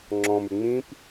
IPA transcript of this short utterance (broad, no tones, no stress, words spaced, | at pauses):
ŋ͡ǁɔ̃mʉ ŋ͡mĩp